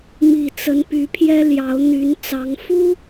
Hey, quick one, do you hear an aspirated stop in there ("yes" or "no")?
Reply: yes